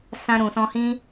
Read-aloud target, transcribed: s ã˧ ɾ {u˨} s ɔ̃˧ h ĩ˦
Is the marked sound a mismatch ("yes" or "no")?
yes